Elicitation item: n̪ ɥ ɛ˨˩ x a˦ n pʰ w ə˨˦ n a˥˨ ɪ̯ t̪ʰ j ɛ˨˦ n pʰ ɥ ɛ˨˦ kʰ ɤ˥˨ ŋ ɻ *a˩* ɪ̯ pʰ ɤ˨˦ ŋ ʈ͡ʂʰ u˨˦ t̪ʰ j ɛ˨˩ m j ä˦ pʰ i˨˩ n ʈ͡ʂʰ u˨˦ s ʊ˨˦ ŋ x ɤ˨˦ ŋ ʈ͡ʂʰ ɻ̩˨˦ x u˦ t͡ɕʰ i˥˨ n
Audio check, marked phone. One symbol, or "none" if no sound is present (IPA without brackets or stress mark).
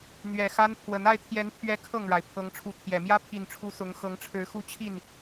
a˩